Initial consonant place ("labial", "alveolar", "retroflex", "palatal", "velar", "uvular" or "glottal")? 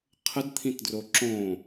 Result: uvular